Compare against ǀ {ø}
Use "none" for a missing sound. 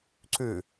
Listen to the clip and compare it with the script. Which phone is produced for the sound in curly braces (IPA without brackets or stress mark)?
ʉ